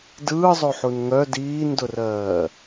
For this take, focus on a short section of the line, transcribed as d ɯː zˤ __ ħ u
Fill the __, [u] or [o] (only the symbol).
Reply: o